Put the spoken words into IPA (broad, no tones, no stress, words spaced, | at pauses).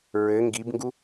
ɹɘ ŋɡibŋɡu